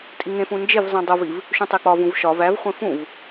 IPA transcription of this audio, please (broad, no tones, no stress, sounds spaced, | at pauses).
tʼ i ŋ ẽ f ũ n d͡ʒ e v zˤ ĩ dˤ o v i v | ʃ ũ tˤ e k͡p ɒ v ũ v ʃ ɒ v æ v χʷ ẽ f ũ v